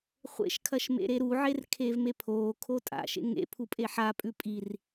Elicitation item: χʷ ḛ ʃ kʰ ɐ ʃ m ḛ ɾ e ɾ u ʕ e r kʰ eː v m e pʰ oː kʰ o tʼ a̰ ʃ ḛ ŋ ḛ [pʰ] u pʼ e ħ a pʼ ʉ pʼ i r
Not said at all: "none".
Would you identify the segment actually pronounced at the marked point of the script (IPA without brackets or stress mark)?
pʰ